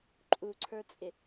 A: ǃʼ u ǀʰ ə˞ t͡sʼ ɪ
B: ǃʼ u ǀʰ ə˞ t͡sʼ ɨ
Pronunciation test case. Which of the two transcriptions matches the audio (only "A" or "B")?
A